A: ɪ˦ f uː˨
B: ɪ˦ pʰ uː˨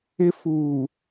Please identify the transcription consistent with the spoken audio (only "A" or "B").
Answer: A